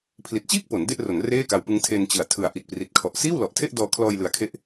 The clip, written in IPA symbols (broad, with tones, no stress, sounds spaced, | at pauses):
pʰ l i˨˩ t̚ t͡ɕ iː˥˩ k̚ p o˩˦ n d e˥˩ ʔ r o˩˦ n r eː˥˩ k a˧ w p ɯ˦˥ ŋ tʰ e˧ n t͡ɕ ɯ˩˦ a̯ tʰ ɯ˨˩ a̯ ʔ i˨˩ t̚ p r i˨˩ t̚ kʰ ɔ˨˩ ʔ s iː˥˩ w l ɔ˨˩ ʔ tʰ e˥˩ ʔ d ɔː˧ kʰ l ɔː˧ j l ɯ˨˩ a̯ kʰ e˦˥ ʔ